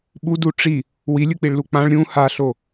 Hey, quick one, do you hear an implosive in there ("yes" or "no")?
yes